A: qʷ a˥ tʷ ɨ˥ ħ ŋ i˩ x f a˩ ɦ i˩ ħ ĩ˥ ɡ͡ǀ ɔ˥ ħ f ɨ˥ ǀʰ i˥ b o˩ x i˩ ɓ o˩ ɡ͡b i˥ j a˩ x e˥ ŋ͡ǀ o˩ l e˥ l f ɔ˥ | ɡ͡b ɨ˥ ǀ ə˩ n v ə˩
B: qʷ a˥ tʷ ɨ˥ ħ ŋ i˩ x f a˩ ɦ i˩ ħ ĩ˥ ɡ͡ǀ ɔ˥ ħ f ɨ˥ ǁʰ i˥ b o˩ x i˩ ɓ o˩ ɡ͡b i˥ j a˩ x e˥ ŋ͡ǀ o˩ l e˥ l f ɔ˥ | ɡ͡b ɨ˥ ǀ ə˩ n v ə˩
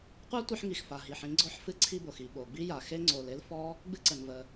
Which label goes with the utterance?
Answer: A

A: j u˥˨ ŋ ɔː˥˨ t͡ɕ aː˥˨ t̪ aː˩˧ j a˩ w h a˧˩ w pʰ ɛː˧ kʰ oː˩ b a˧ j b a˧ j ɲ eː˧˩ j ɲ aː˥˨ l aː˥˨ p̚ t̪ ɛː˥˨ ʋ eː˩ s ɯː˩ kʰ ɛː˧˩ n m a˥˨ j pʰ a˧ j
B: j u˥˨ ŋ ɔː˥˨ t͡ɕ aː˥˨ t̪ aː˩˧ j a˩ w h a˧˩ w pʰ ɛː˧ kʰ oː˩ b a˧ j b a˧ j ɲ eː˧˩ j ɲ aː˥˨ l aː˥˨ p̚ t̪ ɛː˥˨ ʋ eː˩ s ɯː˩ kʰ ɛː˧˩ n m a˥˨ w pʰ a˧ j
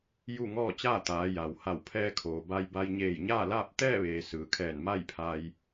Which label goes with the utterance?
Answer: A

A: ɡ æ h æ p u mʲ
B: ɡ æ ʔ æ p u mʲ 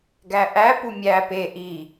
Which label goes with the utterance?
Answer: B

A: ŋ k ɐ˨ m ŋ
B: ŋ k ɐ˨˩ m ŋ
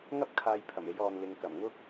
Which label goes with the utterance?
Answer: B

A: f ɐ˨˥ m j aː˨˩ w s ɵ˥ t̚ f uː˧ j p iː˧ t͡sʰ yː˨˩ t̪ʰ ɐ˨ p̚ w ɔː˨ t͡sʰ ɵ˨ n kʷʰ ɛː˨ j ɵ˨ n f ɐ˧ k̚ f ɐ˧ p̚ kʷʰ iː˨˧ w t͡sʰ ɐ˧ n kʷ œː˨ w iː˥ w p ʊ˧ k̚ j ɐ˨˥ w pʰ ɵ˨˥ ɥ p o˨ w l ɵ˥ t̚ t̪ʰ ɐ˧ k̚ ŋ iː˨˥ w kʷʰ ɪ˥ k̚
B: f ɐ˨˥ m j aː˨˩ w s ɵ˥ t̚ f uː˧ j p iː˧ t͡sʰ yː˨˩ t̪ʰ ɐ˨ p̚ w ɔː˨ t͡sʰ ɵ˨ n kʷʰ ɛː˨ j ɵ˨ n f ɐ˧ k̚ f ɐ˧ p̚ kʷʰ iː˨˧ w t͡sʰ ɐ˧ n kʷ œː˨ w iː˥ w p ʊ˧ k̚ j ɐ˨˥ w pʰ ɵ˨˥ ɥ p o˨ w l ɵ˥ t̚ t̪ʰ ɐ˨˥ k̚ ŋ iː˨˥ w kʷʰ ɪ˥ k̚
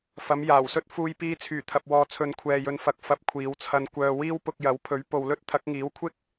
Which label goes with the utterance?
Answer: B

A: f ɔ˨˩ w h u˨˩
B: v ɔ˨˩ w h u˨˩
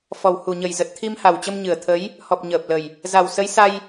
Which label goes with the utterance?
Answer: A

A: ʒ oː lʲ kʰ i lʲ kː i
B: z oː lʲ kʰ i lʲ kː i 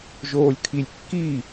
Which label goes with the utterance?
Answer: A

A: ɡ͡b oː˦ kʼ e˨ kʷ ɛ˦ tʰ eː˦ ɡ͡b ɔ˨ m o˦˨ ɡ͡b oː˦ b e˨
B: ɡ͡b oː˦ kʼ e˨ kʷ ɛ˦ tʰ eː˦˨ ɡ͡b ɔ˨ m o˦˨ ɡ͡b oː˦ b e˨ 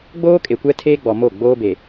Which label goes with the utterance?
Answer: A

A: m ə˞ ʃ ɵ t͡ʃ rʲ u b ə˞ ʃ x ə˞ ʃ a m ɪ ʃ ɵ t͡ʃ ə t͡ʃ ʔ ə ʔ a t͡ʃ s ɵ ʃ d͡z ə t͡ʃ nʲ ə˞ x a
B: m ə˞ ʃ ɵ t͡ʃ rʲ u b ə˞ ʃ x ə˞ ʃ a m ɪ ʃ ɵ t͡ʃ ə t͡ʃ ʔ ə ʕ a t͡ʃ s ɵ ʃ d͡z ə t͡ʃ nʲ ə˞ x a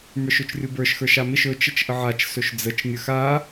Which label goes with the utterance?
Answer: B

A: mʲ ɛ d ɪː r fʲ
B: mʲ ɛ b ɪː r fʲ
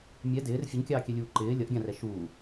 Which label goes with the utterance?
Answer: A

